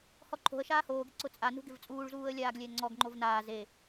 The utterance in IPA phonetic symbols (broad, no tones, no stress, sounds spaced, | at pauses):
h ɔ ǃʰ o̤ ə̯ ʃ aː h oː ɡ ɪ ǀ ʊ t͡sʼ a n ṳ ɡ ɪ v t͡sʼ uː ɭ z uː ə̯ lʲ aː ɡ lʲ ɛ ŋ͡ǀ ɔ ɡ ŋ͡ǃ o v n aː z e